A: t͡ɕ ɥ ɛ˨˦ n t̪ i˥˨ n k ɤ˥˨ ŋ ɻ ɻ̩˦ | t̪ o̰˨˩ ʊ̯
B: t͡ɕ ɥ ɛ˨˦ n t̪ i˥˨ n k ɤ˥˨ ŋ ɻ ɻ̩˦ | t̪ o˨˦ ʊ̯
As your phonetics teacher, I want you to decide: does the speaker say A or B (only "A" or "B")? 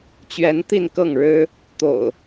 A